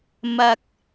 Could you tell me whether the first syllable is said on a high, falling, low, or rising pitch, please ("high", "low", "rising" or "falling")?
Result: low